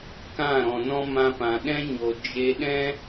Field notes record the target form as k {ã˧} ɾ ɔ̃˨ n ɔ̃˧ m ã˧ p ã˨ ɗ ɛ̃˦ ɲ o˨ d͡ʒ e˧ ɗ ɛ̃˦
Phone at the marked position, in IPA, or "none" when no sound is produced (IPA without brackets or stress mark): ã˦˨